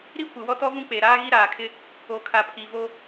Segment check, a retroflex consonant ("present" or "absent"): absent